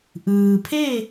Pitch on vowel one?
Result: low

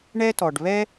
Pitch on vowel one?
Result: high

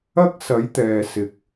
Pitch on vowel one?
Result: high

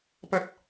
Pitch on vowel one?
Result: high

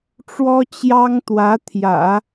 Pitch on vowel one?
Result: high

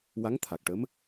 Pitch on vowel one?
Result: rising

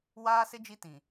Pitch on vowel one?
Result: high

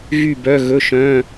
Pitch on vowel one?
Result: falling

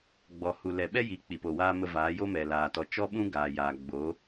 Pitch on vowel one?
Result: low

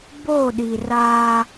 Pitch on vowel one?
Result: falling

